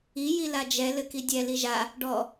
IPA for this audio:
i j i l a d͡ʒ ɛ l ɘ k i dʲ ɛ l i ʒ a | ɖ ɔ

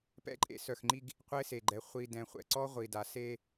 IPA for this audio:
p ɛ̰˦ ǃʼ ḛ˦ s œ˨ x ŋ͡ǃ i˦ ɡ | qʷ e˦ s e˨ ɡ͡ǃ ɛ˨ χʷ i˨ d ɛ̃˨ χʷ ɛ̰˨ ǀ ɔ˦ ʁʷ i˨ d a˨ s e˦

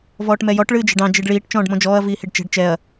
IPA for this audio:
v ɔː ʈ m ɛ j ɔ ʈ ɭ ɨː d͡ʒ ɛ̤ ɖ ɑ̃ d͡ʒ i ɖ ɭ iː ʈ t͡ʃ ɔ̃ː ɖ m ɔ̃ d͡ʒ ɔː ɐ̯ v iː h i ɖ t͡ʃ ɛ̤ ɖ t͡ʃ ɛ ɐ̯

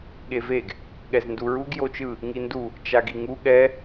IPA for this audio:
ɠ e v e ɡ | ɠ ɛ z n d u ɹ u ɡ j o t͡ʃ ɯ | ŋ i n d u | t͡ʃ a ɡ i ŋ u ɠ ɛ

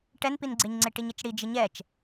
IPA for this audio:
ʈ ɛ n p i n ɡ͡ǀ e ɲ ŋ͡ǀ e ʈ i ɲ ɪ t͡ʃ ɽ i d͡ʒ ɪ ɲ ɛ t͡ʃ

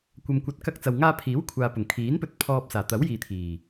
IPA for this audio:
kʷ ɐ˨ m kʷ ɐ˨˥ t̚ k ɐ˧ k̚ t͡s ɐ˨ w ŋ aː˧ pʰ iː˨˥ w kʷʰ aː˧ p ʊ˨˩ ŋ kʰ iː˨˥ n p ɵ˧ t̚ pʰ ɔː˧ p̚ s aː˨˩ t̪ ɐ˨˥ w j iː˨ t̪ʰ iː˨˩

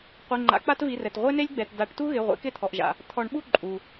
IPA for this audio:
qʷ i˩˧˩ ŋ͡ǃ a̰˨˩˦ k͡p a˥ t v i˩˧˩ r ɛ˩ t ʁʷ e˥ n e˥ lʲ ɡ͡b ɛ˩˧˩ t d a˨˩˦ ʈ t u˥ ɣ ɪ˩˧˩ ʁʷ ḛ˨˩˦ k ɪ˥˧ t̪ʰ ɔ˩ ʔ ʒ a̰˩ | t̪ʰ ɔ˨˩˦ ɳ ɓ u˥˧ ǃʼ u˩

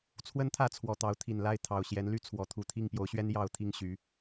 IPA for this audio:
t͡sʰ w ə˦ n t̪ʰ ä˥˨ t͡sʰ w ɔ˨˩ t̪ ɑ˨˦ ʊ̯ t̪ʰ i˨˩ n l a˥˨ ɪ̯ t̪ʰ ɑ˨˩ ʊ̯ ɕ j ɛ˨˦ n l y˥˨ t͡sʰ w ɔ˨˦ t̪ʰ u˨˩ t̪ʰ i˥˨ ŋ p j o˨˦ ʊ̯ ɕ ɥ ɛ˦ n j ɑ˥˨ ʊ̯ t̪ʰ i˥˨ ŋ ɕ y˨˦

